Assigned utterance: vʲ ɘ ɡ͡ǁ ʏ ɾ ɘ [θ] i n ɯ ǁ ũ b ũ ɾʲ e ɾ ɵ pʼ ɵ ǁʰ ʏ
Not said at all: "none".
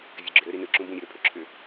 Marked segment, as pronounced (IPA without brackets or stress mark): ɾ